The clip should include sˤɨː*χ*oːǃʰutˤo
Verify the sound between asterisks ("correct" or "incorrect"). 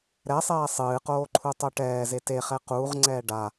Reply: incorrect